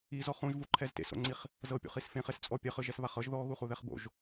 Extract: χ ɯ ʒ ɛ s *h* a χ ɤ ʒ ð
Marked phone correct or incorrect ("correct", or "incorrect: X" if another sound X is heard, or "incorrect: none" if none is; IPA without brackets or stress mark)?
incorrect: β